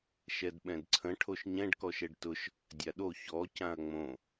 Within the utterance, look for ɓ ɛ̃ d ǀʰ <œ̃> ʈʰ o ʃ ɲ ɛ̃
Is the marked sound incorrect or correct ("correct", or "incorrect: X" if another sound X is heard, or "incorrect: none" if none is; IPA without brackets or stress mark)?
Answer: incorrect: ə̃